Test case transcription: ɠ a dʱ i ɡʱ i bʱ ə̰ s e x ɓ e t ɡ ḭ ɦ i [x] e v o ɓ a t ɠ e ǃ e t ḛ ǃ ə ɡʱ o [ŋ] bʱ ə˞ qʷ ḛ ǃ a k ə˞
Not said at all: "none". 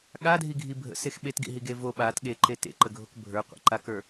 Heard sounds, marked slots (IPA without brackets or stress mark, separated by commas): ɡ, k